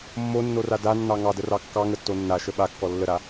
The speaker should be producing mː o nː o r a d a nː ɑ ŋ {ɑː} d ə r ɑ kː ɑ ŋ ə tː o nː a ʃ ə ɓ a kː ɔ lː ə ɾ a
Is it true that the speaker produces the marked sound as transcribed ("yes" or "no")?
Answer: no